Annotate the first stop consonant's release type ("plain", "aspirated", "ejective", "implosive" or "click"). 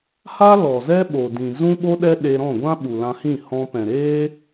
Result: implosive